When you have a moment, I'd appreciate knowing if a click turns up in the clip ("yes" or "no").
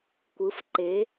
yes